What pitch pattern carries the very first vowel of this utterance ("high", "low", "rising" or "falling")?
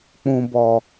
low